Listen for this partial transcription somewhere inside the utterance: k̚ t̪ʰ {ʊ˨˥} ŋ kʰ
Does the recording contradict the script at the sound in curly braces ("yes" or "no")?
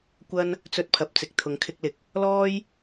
no